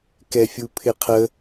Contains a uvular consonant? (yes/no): yes